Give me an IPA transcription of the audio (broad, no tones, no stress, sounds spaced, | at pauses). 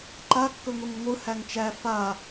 ǃ a kː ɵ ŋʷ i ŋ ə ŋʷ ɯ h æ ŋ t͡ʃ æ f a